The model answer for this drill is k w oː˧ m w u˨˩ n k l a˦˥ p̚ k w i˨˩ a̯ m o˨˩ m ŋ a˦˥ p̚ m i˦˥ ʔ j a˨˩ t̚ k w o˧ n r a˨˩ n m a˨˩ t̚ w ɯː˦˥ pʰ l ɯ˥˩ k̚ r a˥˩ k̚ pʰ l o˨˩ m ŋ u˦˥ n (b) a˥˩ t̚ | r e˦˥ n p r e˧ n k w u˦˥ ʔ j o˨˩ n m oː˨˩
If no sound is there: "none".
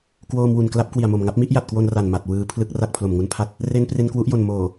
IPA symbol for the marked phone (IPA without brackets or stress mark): pʰ